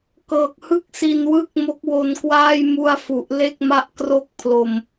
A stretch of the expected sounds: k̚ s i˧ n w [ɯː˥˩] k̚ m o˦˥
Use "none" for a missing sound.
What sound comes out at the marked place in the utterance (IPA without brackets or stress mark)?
ɯː˥˩